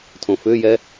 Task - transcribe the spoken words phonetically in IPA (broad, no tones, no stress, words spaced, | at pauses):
tʰõfʏːjɛ